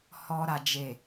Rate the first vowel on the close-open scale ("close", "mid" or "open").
mid